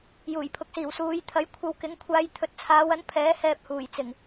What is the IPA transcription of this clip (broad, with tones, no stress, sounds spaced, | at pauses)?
j uː˨˩ j pʰ ʊ˨˥ k̚ s iː˨˩ w s uː˨˧ j t̪ʰ ɐ˨˥ j kʷʰ ɐ˧ w k ɪ˨˥ ŋ kʷʰ aː˧ j t̪ʰ ɵ˨˥ t̚ t͡sʰ aː˨˧ w ɐ˨˥ n pʰ ɛː˨˥ h ɛː˧ p̚ h uː˨˩ j t͡s ɪ˨˩ ŋ